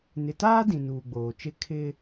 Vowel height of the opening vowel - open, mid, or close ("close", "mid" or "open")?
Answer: close